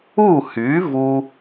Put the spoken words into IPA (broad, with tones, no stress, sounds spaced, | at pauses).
u˥˩ h y˩˥ v u˦